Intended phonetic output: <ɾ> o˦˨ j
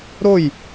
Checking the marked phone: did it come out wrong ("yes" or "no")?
no